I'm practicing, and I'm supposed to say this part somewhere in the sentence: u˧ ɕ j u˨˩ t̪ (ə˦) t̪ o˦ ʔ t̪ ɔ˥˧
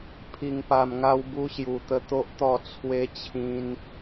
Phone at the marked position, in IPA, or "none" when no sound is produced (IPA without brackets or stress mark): ə˧